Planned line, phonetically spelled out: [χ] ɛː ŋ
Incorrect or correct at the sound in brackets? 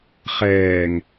correct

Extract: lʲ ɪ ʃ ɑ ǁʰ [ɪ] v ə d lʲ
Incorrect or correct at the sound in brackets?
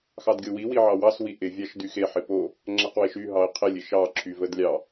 incorrect: y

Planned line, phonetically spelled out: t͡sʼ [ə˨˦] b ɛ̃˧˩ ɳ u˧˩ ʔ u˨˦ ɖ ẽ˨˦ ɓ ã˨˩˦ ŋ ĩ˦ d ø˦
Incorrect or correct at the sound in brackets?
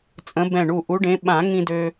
incorrect: ə̃˨˦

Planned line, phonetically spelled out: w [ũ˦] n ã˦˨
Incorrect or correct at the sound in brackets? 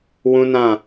correct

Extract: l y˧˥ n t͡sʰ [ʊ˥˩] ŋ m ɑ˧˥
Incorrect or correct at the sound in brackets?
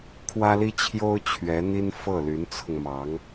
incorrect: ʊ˧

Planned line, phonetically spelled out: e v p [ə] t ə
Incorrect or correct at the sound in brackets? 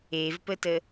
correct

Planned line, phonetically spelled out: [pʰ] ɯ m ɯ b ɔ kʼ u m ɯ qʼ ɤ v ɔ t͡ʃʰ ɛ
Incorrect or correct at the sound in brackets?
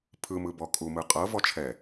correct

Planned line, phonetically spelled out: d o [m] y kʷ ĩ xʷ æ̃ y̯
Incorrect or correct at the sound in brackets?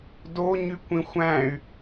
incorrect: ɲ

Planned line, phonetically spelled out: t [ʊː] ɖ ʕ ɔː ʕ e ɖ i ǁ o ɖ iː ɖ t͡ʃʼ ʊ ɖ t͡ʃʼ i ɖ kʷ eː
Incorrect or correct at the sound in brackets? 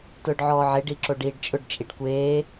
correct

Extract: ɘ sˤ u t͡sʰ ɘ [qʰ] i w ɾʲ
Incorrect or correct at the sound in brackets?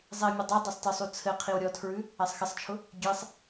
correct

